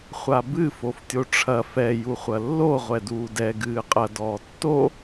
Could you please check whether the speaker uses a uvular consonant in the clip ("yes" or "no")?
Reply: yes